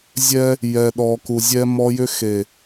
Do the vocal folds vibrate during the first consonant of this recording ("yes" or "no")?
yes